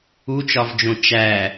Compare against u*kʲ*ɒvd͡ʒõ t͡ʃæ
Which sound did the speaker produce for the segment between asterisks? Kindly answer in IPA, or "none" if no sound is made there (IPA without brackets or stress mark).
t͡ʃ